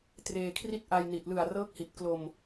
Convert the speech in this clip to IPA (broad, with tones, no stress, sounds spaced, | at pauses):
t r eː˧ kʰ r i˥˩ t̚ ʔ a˧ j n i˨˩ t̚ l ɯ˨˩ a̯ r ɤː˦˥ k̚ h i˨˩ t̚ k l o˧ m